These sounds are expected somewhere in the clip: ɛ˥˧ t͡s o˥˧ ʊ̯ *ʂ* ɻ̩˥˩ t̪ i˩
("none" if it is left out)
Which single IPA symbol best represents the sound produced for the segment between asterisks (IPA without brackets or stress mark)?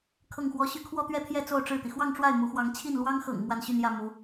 ʈ͡ʂ